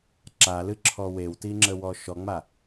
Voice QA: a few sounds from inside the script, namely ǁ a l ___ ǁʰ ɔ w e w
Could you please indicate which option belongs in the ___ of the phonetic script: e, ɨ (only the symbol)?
ɨ